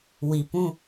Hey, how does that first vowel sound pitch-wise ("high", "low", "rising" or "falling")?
low